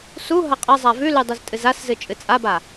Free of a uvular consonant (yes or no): no